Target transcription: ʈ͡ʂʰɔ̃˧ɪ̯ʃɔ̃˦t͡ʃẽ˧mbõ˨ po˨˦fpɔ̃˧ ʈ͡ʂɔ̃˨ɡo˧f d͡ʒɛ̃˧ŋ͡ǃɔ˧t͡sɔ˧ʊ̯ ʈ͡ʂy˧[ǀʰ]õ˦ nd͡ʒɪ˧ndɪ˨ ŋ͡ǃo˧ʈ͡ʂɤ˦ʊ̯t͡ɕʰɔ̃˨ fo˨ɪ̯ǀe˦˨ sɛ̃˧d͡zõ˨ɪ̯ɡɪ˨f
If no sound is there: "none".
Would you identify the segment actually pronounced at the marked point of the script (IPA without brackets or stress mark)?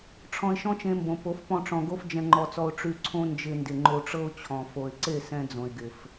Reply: ǀʰ